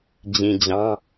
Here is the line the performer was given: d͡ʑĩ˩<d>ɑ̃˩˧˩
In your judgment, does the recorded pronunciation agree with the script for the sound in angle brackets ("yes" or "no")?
no